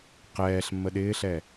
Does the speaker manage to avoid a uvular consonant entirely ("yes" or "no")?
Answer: no